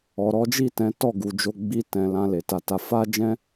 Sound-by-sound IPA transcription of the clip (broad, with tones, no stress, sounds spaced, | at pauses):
ɔ˨ ɾ ɔ˨˦ d͡ʒ i˦˨ t ɛ̃˨˦ t ɔ˦˨ ɡ u˨ d͡ʒ o˧ ɡ͡b i˧ t ɛ̃˨ l ã˧ l e˨ t a˨˦ t a˧ f a˦ d͡ʒ ɛ̃˦